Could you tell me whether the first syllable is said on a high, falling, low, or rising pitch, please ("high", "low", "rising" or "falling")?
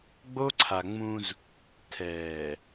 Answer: high